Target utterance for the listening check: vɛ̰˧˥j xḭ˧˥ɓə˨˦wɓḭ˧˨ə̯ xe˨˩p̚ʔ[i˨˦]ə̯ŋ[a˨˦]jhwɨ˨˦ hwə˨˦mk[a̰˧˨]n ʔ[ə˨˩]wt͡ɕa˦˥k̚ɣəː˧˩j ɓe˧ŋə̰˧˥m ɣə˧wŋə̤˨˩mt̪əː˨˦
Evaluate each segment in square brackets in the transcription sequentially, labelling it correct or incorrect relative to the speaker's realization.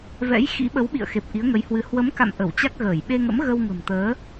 correct, incorrect, correct, incorrect

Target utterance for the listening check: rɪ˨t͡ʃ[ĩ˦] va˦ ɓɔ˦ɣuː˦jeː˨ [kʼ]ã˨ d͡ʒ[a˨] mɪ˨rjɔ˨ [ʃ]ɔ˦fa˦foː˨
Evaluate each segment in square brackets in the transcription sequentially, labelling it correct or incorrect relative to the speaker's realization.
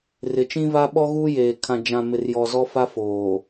correct, incorrect, incorrect, incorrect

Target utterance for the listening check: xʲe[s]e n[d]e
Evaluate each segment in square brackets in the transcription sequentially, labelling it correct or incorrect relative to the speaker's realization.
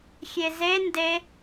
incorrect, correct

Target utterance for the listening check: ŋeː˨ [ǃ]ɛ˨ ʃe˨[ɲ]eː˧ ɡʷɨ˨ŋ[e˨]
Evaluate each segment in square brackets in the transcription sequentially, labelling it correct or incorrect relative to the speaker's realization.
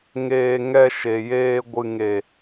incorrect, incorrect, correct

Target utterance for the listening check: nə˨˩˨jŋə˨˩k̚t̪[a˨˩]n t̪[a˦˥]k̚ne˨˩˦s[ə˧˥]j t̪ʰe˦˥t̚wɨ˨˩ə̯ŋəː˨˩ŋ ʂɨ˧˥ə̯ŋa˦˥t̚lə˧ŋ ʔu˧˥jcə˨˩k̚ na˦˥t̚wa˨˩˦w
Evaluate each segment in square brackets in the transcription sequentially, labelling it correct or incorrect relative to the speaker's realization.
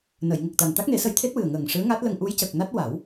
correct, correct, correct

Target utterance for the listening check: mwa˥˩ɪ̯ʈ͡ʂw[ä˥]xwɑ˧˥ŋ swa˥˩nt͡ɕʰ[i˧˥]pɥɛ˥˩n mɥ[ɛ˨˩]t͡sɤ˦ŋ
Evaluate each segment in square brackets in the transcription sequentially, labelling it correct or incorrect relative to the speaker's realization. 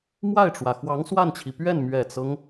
incorrect, incorrect, correct

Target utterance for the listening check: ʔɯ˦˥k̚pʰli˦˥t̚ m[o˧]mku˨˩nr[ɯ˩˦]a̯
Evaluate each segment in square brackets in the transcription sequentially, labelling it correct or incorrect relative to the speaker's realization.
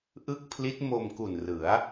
correct, correct

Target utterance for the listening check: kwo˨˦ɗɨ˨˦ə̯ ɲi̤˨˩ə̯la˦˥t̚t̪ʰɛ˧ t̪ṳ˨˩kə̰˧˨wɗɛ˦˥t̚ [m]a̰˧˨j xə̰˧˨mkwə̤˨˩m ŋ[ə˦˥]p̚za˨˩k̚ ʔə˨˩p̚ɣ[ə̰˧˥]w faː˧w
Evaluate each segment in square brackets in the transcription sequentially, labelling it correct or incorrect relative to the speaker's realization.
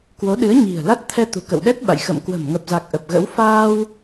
incorrect, incorrect, correct

